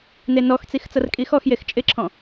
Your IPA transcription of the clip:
n e n ɔ x t͡s i x t͡s ʌ r kʼ i x ɔ x j e x t͡ʃʼ ɪ ǁʰ ɔ̃

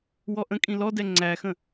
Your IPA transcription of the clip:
w ɔ ʔ ə̃ kʼ ĩ l ɔ d ɛ ŋ͡ǀ æ x ə̃

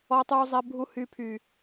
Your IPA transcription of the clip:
ɔ˦ tˤ uː˦ zˤ ɛ˦ bʱ u˦ h y˦ pʰ y˦

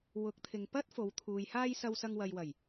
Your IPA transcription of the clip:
w ʊ˨˥ k̚ t̪ʰ ɪ˨ ŋ p ɐ˥ t̚ f o˨˧ w t̪ʰ uː˨ j h aː˥ j s ɐ˧ w s ɐ˧ ŋ w ɐ˨ j w ɐ˨˩ j

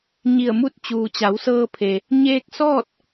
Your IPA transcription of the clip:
ɲ i˧˩ ə̯ m u˥˨ t̚ t͡ɕ uː˩ t͡ɕ a˩˧ w s ɤː˧ pʰ e˩ | ɲ eː˧ k̚ s ɔː˥˨ t̚

